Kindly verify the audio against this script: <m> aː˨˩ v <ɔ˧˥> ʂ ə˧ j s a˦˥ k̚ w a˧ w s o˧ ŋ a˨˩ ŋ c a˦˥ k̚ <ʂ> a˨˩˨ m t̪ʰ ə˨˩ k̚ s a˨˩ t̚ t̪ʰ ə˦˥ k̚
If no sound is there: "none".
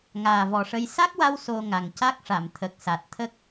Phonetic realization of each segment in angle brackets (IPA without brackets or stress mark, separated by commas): ŋ, ɔ˨˩, ʂ